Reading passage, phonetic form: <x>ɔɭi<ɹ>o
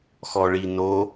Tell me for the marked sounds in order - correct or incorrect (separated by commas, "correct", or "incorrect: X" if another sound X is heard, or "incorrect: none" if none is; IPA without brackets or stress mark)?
correct, incorrect: n